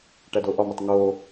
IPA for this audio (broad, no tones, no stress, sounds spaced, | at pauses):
ʈ æ d o ʔ ɒ m u tˤ ŋ o